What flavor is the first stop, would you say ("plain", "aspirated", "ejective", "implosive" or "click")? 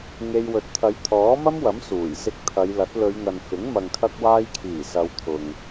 plain